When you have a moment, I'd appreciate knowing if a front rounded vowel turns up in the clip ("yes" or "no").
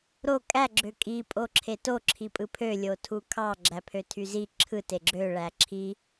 yes